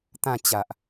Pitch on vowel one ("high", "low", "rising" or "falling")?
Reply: falling